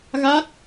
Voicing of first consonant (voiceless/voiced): voiced